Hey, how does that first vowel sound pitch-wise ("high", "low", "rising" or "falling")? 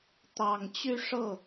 low